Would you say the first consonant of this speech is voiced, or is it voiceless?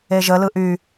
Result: voiced